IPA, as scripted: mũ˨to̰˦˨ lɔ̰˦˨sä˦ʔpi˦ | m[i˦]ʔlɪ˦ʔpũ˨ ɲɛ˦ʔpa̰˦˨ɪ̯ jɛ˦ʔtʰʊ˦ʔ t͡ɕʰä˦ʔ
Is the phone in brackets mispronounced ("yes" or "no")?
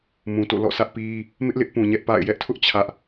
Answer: yes